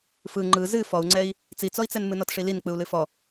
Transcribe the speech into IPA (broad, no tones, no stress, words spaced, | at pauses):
fɯ ŋ͡ǃɯ zɨ fɔu̯ŋ͡ǀɛi̯ | t͡sit͡sɔi̯t͡sɛn mɨnɔtʂilin k͡pɯu̯lɨfɔ